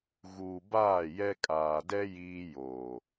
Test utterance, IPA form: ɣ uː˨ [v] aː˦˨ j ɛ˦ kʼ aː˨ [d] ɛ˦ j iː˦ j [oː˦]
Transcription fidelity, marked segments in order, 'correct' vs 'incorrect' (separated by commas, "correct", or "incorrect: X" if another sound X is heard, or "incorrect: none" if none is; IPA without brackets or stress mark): incorrect: b, correct, incorrect: oː˨